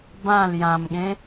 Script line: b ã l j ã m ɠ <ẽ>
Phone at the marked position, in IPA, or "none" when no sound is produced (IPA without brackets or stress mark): ẽ